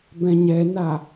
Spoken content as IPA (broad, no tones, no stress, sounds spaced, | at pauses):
b ɛ̃ ɲ ɛ n a